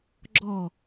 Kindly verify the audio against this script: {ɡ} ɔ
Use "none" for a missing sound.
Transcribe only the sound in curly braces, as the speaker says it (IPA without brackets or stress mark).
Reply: ɡ͡ǁ